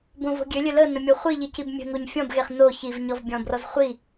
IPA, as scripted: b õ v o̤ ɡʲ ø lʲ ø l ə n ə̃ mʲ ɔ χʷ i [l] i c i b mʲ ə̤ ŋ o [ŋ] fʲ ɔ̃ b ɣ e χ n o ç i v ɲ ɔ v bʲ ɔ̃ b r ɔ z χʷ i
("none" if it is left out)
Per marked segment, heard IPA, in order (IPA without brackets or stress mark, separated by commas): ʎ, ɲ